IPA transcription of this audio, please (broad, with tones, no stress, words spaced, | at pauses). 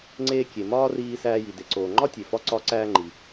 ŋ͡ǀeː˧kʲe˩ mɒː˥riː˧sæː˧ji˩ de˩ǀoː˩ŋ͡ǃɒ˥ tʲe˩fɒ˧ ǀɒ˧ǀæː˧ŋ͡ǃi˩